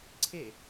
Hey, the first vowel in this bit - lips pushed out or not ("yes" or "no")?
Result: no